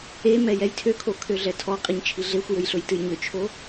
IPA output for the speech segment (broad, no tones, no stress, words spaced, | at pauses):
e mɛjɛjtʰøkʰo kʰøɮɛtʰɔqʼiɲ t͡ʃʰiɮexʷjøj ɬɵjtɨjɲʏt͡ʃʰo